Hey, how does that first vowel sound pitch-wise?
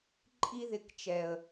high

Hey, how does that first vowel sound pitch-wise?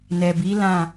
low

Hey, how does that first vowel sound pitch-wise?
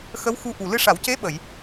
rising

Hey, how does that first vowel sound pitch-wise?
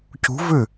rising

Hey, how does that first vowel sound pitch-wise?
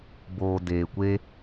low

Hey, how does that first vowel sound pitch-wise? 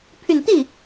low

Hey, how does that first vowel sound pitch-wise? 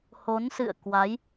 rising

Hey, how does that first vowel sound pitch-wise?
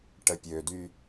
low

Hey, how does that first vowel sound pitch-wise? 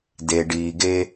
low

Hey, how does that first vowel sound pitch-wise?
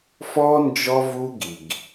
high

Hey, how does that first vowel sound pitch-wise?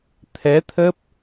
rising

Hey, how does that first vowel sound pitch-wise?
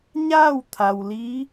falling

